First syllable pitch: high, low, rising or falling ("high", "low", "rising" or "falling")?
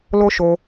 high